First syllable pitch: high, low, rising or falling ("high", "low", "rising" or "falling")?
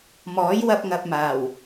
rising